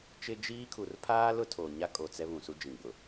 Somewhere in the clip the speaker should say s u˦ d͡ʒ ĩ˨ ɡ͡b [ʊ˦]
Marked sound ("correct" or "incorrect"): incorrect